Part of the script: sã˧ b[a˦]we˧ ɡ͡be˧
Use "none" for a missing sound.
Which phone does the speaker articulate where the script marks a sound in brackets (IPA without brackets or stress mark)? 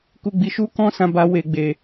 a˧